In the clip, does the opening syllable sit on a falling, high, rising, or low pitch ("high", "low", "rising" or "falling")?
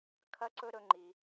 high